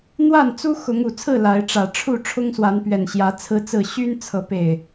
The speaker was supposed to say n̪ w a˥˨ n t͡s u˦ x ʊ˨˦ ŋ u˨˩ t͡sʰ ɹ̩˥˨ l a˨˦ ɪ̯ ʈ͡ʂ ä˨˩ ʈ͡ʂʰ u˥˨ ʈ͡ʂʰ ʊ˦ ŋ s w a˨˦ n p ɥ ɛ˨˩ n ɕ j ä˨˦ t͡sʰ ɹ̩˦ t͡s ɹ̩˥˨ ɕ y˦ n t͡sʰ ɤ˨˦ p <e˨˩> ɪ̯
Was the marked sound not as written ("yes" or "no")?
no